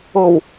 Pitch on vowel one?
low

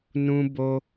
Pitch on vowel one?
high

